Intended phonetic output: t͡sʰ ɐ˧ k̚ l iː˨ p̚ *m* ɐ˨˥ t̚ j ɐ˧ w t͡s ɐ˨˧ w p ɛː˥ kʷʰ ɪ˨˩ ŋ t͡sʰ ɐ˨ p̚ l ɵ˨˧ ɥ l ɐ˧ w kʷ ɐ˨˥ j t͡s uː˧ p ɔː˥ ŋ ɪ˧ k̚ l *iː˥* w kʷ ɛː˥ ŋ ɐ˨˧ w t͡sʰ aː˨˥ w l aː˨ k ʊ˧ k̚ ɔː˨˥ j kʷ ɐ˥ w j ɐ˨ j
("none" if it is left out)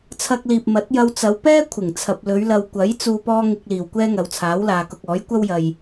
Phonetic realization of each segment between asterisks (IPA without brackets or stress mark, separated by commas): m, iː˨˩